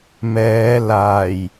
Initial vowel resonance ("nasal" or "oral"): oral